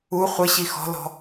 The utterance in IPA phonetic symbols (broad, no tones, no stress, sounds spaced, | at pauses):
u χʷ ɪ ɕ i x ɔ̤ l ɔ̤